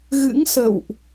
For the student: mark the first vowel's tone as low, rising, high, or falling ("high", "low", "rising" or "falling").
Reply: rising